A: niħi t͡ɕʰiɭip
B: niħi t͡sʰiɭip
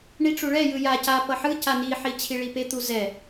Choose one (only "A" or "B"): A